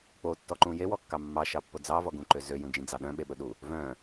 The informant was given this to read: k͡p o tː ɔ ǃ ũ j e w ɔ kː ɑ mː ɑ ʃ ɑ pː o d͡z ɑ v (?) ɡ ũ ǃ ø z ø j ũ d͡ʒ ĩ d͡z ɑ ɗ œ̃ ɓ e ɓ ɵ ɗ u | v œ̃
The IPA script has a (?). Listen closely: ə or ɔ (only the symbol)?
ɔ